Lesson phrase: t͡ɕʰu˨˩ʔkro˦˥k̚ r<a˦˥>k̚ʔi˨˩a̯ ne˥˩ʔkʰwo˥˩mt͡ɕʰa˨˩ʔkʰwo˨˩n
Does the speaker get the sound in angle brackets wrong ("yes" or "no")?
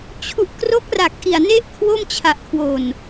yes